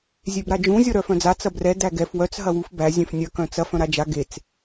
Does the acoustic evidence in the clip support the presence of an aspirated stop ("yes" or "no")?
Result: no